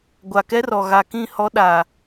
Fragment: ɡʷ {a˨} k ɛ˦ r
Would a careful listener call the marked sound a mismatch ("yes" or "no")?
no